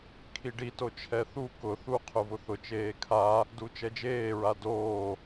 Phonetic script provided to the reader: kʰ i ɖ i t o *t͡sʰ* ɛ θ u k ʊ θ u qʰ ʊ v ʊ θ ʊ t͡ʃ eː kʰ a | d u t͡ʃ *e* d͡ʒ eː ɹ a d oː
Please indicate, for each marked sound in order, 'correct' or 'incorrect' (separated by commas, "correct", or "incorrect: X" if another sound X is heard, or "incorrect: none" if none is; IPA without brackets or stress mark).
incorrect: t͡ʃʰ, incorrect: ɛ